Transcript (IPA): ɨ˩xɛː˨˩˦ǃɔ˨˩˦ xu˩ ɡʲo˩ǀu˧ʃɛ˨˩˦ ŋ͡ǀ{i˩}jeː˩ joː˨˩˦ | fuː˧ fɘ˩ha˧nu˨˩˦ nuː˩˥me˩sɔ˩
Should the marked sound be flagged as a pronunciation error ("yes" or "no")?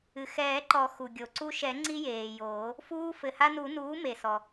yes